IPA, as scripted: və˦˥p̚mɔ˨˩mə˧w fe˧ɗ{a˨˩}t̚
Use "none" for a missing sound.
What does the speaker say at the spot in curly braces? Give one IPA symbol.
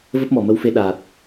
aː˨˩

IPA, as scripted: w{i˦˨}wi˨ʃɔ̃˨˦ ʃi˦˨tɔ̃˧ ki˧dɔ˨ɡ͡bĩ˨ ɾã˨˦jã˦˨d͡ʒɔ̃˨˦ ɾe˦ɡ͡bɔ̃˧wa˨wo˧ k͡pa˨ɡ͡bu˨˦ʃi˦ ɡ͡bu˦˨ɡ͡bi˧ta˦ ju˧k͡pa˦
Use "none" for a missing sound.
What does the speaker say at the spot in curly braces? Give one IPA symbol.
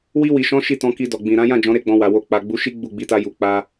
i˧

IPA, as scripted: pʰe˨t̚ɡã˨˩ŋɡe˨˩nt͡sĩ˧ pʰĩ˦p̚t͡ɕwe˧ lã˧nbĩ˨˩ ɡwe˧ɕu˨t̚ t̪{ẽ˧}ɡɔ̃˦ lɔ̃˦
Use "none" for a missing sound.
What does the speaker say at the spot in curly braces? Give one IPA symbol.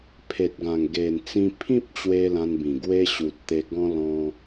e˧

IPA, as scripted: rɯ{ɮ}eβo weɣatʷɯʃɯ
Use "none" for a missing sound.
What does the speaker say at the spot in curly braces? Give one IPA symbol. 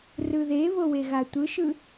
ð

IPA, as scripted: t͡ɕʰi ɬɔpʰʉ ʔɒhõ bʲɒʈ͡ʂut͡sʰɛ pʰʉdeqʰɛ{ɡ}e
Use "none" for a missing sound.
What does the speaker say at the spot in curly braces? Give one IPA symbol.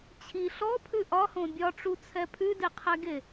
ɡ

